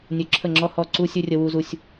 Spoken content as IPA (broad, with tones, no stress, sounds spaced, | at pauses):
nʲ ɵ˦ ǁʰ ə˦˨ ŋ͡ǁ ɔ˦ h ɔ˦˨ ǀ u˦ sʲ ɵ˦ rʲ ə˦ w u˦ z u˦ sʲ